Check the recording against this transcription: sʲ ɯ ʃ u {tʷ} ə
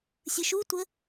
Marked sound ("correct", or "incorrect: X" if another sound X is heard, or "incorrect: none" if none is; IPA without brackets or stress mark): correct